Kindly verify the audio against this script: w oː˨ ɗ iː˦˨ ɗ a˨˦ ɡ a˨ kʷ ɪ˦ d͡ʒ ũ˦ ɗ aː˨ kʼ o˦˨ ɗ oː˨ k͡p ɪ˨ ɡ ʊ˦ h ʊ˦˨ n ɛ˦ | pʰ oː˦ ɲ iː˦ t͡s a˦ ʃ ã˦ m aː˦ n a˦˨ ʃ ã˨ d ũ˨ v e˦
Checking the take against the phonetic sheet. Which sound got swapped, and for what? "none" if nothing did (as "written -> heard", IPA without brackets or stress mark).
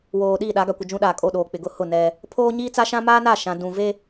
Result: none